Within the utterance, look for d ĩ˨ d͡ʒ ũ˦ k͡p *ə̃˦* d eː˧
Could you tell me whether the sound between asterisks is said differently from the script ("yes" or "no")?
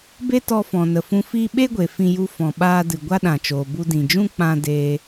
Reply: yes